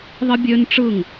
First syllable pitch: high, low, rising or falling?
high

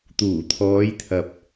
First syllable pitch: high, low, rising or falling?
low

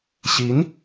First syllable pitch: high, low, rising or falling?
rising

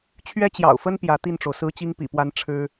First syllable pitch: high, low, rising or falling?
high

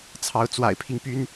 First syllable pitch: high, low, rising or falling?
rising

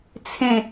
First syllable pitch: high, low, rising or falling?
falling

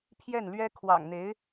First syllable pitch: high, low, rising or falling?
falling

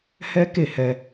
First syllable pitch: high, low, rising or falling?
high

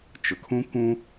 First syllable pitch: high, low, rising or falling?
low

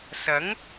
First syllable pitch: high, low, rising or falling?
rising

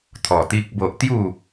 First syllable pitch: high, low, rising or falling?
low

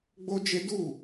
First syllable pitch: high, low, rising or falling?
high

